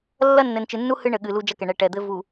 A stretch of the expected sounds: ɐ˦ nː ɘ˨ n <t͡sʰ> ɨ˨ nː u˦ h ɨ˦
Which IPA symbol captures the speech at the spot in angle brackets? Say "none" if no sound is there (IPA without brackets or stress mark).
t͡ʃ